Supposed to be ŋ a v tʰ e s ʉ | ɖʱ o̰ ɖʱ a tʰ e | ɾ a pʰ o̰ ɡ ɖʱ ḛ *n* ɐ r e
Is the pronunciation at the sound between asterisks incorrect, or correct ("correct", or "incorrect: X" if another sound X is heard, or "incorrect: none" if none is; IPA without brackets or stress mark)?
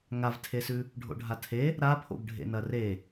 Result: correct